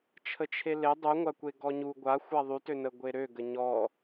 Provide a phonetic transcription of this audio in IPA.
t͡ʃʰ ə t͡ʃʰ e l e dˤ y ŋʷ a kʷ e ɡ ɔ ɲ u ɡʷ a xʷ a ðˤ y t ø n ə ɡʷ e ɾ ø ɡ ə ɲ ɔ

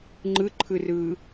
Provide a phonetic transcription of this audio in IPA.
ŋ͡ǃ ɯ ǃʰ ɯ r ɯː

